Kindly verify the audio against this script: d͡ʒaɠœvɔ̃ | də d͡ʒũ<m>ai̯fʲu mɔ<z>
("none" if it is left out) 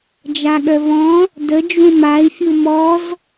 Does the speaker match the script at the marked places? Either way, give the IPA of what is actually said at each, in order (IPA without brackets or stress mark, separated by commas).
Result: m, z